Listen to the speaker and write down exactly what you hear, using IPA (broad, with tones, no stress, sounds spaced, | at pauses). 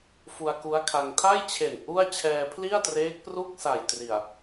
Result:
f u˧ a̯ k u˦˥ a̯ kʰ a˧ ŋ tʰ a˥˩ j t͡ɕʰ e˨˩ n ʔ u˥˩ a̯ t͡ɕʰ ɛː˧ pʰ l i˥˩ a̯ t r eː˦˥ k̚ p r u˥˩ k̚ s a˨˩ j t r i˨˩ a̯